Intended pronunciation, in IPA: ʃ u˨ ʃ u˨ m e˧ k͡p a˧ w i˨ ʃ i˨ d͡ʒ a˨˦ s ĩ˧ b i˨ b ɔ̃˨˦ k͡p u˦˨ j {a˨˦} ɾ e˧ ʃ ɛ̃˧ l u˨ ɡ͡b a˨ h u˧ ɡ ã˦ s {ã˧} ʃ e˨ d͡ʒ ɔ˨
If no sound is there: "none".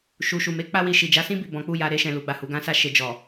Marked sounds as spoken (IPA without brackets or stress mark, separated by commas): a˨˦, a˧